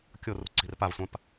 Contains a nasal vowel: yes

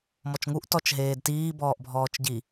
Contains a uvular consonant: no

